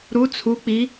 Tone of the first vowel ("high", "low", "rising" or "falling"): rising